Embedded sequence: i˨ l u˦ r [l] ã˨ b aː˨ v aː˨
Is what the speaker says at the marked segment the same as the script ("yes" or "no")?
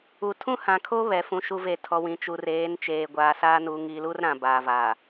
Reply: no